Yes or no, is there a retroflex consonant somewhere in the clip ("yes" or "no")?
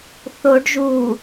yes